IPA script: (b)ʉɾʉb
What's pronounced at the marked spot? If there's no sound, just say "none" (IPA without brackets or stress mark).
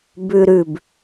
b